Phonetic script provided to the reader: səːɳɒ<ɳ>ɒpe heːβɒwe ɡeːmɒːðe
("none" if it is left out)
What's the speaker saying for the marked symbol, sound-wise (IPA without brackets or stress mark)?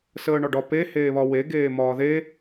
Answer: ɖ